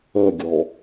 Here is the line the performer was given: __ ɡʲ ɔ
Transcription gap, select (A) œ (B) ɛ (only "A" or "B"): A